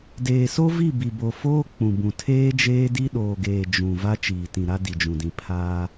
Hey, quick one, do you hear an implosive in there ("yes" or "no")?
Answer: yes